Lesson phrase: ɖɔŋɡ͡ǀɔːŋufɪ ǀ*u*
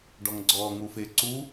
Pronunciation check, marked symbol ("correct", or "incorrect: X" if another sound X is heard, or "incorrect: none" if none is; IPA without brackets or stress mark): correct